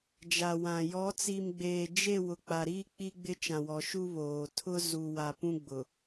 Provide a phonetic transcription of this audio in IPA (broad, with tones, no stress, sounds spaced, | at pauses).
d͡ʒ a˨ w ã˨ j ɔ˨˦ t͡s i˨ m ɡ͡b eː˨ d͡ʒ e˦˨ w ʊ˨ k͡p a˨ ɾ iː˦ k͡p i˦ ɡ͡b ɪ˦ t͡ʃ ã˨ w ɔ˨ ʃ u˦ β oː˨ tʰ ʊ˦ z u˨ w a˨ p ũ˦ ɡ͡b ʊ˨